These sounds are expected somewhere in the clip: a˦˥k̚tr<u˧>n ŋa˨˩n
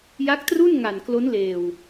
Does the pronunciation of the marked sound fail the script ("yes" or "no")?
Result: yes